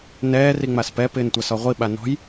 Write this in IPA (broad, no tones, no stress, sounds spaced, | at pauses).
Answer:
n ɛː r i ŋ͡m a s p ɛ p ɪː n tʷ a s ɔ ʁʷ i ɓ a n ɔ̤ j